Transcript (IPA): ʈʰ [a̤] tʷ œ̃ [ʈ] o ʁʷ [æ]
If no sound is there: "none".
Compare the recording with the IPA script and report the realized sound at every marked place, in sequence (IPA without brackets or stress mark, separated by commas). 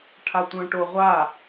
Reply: a, ʈ, a